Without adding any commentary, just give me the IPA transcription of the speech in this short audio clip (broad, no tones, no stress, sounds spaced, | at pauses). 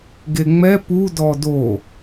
ɡ e ŋ͡m ɛ p u d ɔ d o